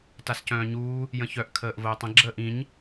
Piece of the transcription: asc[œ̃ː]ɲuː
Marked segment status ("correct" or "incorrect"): correct